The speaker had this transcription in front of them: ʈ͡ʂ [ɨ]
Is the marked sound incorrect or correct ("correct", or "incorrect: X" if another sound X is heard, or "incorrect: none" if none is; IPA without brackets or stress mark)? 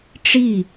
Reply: incorrect: i